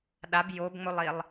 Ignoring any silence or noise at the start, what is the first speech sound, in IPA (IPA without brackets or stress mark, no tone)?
ɗ